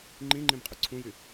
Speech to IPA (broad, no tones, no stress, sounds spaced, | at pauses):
ŋ͡ǃ ĩ ŋ͡ǃ ĩ m qʼ ʉ ǀʰ ũ j y